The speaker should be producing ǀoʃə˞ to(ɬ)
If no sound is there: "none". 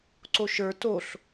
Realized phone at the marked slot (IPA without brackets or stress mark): ɬ